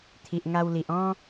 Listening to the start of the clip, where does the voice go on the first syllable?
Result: low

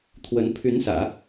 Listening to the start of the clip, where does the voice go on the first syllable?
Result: rising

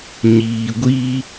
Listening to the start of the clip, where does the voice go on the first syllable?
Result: low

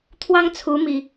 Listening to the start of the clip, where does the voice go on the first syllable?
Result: high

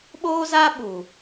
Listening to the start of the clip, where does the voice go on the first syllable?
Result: high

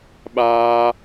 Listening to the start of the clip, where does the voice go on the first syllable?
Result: high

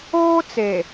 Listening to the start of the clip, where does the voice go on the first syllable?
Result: high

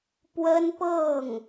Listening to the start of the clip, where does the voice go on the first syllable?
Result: high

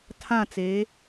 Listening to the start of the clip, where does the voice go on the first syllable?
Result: falling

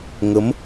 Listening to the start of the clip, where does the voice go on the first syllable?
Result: rising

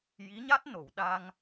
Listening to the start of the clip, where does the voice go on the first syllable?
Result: rising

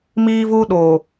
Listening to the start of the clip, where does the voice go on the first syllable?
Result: high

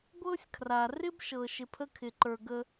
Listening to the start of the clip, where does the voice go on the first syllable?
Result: high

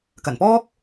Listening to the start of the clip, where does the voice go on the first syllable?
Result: low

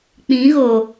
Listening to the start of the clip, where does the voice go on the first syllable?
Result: rising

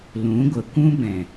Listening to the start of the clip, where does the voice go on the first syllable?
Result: rising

